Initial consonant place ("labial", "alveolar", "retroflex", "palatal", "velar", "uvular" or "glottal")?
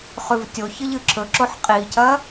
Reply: uvular